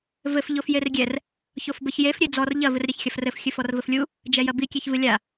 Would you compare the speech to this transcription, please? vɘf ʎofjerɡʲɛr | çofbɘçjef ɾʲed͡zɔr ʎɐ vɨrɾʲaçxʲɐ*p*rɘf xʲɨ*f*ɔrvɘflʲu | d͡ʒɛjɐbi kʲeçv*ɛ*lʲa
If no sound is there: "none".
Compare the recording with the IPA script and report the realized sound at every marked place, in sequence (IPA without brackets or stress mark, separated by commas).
f, f, ɨ